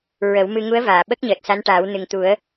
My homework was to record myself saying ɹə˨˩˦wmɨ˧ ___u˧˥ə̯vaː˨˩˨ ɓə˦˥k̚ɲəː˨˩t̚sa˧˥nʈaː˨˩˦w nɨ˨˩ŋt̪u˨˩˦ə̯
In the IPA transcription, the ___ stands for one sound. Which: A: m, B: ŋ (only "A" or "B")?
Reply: B